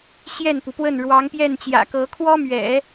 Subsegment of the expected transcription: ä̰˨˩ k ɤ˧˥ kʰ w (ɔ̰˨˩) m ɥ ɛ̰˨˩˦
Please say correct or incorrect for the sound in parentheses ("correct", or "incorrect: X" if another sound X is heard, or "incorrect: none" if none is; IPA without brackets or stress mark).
incorrect: ɔ˥